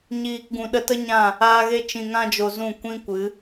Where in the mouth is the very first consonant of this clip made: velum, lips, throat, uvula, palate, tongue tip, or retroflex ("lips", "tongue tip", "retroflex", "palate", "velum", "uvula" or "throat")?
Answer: palate